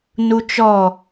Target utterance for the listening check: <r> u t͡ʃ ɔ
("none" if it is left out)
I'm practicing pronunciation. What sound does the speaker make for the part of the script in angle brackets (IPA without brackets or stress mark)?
n